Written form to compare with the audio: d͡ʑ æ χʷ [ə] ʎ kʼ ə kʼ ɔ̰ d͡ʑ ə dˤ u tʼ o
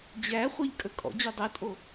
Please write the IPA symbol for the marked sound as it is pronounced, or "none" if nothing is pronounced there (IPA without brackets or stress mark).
a